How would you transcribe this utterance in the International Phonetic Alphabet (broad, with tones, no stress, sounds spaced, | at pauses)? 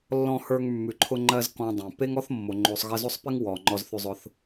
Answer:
lː ɔ̃˧ h ə˞˧ ŋ mː ʉ˩ ǃʰ ʊ˧ ŋ͡ǃ ɜ˧ z k ɔ̃˧ dˤ ẽ˩ p e˥ ŋ ɔ˥ θ mː o˩ ŋ͡ǃ o˧ sˤ ɣ ɜ˧ z o˥ sˤ p e˥ ŋ w ɔ˩ ŋ͡ǃ ɔ˧ z θ ʉ˧ zˤ ʊ˧ θ